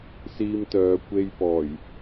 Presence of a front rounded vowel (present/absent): present